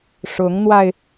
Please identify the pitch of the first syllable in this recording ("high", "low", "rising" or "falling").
rising